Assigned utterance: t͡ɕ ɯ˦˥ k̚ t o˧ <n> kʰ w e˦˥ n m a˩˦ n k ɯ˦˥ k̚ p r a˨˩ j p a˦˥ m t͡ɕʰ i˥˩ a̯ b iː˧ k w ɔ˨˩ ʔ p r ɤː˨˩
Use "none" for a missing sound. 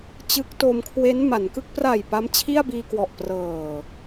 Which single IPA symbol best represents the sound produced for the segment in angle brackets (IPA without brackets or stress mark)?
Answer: m